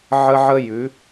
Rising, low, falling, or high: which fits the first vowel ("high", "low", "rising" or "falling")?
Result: high